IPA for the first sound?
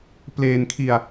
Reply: p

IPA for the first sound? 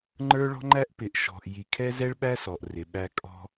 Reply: ŋ͡ǃ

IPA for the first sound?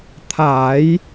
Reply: t̪ʰ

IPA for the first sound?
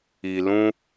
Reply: i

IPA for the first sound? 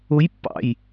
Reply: ʊ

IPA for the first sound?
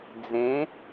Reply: d͡z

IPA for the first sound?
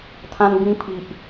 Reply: t̪ʰ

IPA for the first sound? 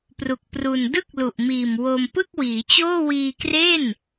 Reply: p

